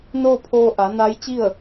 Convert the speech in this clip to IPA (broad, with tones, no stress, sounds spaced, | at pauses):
n oː˥˨ pʰ oː˧ ʔ a˩˧ n a˧˥ j t͡ɕ i˥˨ ə̯